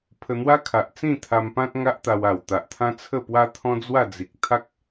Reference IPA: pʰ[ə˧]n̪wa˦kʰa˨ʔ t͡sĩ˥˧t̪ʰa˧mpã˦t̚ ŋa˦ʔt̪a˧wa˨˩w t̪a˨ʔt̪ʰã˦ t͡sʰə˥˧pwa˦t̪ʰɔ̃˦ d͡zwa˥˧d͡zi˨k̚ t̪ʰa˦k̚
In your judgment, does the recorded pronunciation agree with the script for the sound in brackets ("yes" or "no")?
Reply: yes